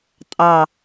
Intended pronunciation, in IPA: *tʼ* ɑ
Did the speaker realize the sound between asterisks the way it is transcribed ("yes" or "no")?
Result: yes